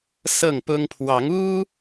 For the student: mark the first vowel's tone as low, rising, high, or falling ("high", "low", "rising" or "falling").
falling